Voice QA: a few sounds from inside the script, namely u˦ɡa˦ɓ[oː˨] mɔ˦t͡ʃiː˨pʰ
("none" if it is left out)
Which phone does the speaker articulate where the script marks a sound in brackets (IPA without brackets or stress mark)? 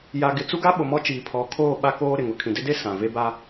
o˨